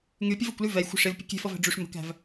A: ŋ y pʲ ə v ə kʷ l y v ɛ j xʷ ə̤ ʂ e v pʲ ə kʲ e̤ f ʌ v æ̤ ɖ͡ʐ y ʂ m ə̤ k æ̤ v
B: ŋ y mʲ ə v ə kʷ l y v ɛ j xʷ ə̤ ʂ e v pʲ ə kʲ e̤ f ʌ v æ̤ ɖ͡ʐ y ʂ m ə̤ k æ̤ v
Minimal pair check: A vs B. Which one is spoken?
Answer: A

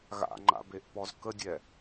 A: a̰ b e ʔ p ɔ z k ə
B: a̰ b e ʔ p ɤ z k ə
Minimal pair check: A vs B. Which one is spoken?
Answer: A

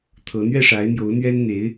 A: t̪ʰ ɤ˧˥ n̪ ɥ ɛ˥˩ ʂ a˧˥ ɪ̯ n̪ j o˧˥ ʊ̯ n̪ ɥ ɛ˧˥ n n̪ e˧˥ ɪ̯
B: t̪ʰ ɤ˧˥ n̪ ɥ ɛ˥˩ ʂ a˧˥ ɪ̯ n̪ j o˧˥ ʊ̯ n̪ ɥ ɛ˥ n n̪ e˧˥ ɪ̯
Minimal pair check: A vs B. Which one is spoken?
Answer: B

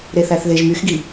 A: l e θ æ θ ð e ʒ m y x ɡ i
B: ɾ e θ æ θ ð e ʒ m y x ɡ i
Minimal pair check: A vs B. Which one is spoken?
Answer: B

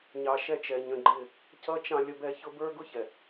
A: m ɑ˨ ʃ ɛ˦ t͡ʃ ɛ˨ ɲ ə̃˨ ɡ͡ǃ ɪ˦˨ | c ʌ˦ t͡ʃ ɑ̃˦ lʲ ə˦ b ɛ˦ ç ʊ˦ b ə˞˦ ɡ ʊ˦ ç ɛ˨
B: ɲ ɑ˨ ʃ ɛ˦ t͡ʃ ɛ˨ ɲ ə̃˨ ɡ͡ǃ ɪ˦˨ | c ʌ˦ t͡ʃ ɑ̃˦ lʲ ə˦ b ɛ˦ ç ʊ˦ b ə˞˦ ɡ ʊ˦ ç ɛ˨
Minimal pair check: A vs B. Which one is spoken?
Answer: B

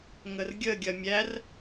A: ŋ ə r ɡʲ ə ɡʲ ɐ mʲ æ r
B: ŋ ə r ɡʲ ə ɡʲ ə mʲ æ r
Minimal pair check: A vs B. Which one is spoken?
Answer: A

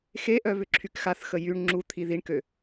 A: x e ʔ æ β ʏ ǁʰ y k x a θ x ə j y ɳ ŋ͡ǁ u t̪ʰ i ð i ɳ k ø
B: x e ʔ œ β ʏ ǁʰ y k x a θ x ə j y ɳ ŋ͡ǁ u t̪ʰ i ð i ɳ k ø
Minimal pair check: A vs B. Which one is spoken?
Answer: B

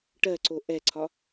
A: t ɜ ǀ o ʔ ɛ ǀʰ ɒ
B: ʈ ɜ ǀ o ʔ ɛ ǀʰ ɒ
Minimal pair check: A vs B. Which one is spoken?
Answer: B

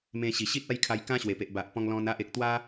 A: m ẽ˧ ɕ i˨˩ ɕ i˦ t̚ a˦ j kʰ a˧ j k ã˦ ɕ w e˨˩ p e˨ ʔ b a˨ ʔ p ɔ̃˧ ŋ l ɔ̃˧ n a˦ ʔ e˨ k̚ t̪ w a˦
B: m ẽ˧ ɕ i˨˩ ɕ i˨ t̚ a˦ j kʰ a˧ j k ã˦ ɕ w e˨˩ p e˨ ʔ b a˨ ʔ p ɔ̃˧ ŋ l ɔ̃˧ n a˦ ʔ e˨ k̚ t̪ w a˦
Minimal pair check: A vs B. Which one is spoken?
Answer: A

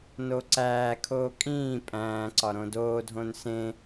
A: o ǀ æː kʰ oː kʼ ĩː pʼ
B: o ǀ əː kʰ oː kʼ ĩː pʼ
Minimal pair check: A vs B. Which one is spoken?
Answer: A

